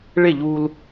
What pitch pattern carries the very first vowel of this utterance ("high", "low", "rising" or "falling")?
falling